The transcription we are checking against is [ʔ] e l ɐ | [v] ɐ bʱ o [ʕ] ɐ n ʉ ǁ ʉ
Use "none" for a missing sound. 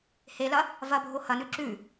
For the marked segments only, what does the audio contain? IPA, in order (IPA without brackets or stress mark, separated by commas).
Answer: h, v, h